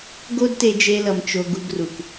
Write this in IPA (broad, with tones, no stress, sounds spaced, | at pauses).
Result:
ɡ o˦ d t e˧ d͡ʒ e˧ l ʌ˨ m t͡ʃ o˧ ɡ u˧ ɡ r u˨ k